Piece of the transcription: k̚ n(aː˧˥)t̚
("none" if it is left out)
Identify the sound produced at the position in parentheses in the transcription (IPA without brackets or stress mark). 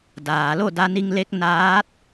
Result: aː˧˥